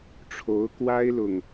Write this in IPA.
ʈ͡ʂʰo˧˥ʊ̯ kwa˥ɪ̯lʊ˨ŋ

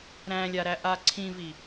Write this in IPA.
ɾæ̃lʲaɾæʔa ǀʰĩvi

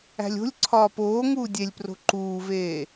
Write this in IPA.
æ̤lʲo̤lʲǀʰɒː poː ŋuːdʲelʲpro̤ ǃuːveː

